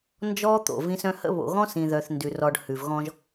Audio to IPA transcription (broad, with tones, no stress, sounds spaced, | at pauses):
n d͡ʒ ɔ˦ t̪ o̰˨ v ĩ˦ s œ̃˦ h ə̰˦ β o̰˨ ɣ ɔ̃˦ s ĩ˨ ð œ˨ θ n d ʉ˨ r ɔ˨ ɖ h ʉ˨ v ɣ ɔ̃˦ ʒ